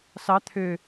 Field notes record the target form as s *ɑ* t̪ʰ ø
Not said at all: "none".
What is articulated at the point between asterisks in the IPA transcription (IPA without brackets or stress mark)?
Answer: ɑ